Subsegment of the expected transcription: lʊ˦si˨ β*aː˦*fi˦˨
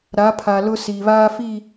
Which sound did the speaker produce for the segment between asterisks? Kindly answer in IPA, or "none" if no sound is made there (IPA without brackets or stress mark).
aː˦